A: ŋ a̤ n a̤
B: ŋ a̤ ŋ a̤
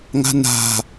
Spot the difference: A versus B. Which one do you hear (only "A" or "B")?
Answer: A